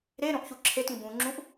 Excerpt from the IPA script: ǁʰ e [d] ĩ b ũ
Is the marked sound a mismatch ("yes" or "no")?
yes